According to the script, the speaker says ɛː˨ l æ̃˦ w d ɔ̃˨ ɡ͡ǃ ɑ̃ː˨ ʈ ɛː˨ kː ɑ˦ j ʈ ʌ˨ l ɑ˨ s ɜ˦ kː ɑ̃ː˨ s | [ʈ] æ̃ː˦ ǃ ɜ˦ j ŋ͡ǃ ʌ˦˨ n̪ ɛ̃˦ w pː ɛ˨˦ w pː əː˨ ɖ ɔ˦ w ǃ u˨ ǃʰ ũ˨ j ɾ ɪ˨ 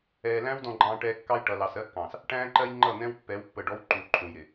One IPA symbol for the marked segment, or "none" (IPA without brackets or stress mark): ʈ